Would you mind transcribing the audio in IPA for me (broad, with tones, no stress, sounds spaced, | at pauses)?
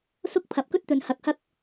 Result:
s ʊ˥ k̚ pʰ ɐ˨ p̚ k ɵ˥ t̚ t̪ ɵ˨ n h ɐ˨˥ k̚ h ɐ˥ k̚